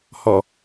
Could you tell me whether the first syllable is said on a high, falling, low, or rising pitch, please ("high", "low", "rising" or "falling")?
low